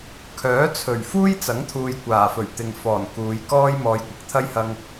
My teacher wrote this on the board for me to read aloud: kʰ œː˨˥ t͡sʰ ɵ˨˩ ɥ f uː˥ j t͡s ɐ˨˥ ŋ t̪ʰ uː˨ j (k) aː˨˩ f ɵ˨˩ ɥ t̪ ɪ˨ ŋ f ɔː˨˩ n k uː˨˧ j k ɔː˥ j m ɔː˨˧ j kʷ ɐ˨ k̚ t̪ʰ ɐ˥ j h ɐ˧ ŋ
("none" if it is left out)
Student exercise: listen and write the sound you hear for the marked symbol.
kʷ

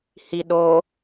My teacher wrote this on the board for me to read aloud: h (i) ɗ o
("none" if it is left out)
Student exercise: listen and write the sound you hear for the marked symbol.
i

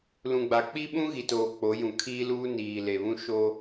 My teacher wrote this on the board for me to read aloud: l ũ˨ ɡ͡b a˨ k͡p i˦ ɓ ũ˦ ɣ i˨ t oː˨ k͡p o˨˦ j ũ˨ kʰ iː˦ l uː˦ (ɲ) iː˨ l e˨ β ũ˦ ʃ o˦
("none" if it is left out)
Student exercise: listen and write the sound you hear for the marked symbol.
n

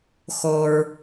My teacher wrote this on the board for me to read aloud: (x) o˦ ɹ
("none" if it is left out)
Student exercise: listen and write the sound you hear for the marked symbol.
x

